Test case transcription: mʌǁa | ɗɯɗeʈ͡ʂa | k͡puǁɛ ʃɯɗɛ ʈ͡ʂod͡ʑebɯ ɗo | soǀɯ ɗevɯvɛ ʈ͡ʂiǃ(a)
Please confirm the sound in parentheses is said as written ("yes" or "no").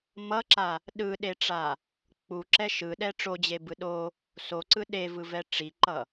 no